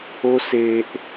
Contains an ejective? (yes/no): no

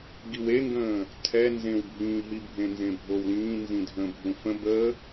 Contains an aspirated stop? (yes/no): yes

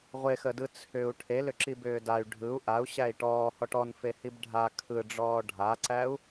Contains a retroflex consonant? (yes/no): yes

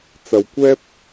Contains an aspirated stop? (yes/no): no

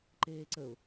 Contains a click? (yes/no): yes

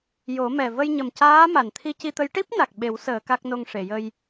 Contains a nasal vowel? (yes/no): no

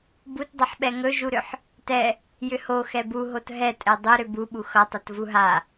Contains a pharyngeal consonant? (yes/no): yes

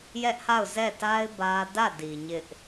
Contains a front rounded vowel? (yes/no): no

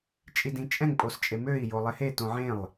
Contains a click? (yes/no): no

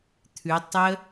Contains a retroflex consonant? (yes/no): no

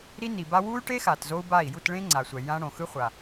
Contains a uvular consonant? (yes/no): yes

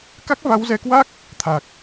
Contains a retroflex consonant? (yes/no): no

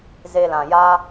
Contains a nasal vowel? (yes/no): yes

